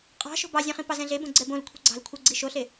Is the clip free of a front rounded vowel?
yes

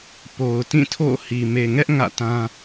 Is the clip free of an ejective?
yes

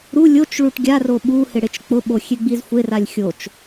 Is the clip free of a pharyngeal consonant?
yes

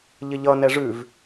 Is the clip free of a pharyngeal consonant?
yes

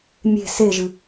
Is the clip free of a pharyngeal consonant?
yes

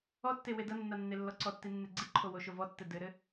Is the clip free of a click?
no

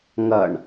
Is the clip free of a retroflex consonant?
no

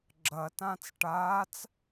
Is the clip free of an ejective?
yes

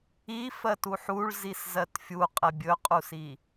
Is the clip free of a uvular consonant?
no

